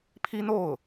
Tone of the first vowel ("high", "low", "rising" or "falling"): high